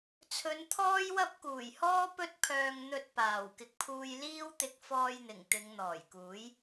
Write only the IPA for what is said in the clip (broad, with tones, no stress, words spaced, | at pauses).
t͡sʰɵ˨˧nt̪ʰɔː˥jwɐ˥p̚ kuː˨˩jhɔː˥ pɵ˥t̚pʰœː˧ŋ n̪ɵ˧t̚ paː˨˩wkɪ˨k̚pʰuː˧j liː˥wt̪ɪ˧k̚ fɔː˧jn̪ɪ˨˩ŋ t̪ɪ˨˧ŋn̪ɔː˨˩jkuː˨˥j